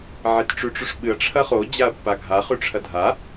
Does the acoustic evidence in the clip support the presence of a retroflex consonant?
yes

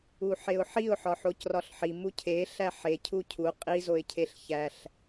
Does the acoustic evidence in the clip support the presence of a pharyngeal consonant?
yes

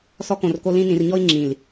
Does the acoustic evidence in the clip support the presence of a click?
yes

